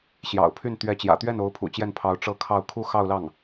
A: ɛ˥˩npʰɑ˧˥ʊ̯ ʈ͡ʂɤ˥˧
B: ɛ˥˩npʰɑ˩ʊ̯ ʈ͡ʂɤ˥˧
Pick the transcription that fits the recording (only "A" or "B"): A